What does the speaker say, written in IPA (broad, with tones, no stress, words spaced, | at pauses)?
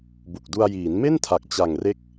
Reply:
bu˨˩k̚du˧a̯ jiː˩˦nme˥˩ntʰa˨˩k̚ t͡ɕa˨˩ŋre˦˥k̚